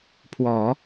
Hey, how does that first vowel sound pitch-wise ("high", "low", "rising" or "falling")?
low